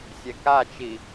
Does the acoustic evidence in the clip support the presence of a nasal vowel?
no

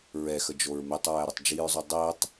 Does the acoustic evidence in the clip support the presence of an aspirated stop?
no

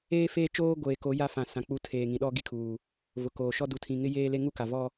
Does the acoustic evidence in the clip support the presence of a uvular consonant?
no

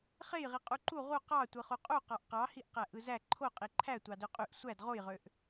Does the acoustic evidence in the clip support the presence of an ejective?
yes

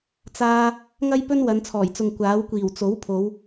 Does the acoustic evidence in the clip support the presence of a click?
no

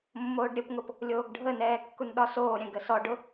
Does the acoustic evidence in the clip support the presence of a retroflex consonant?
yes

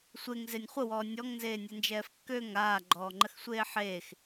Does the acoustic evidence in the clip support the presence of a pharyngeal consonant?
yes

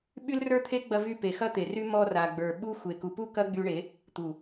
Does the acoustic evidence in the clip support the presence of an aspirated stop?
yes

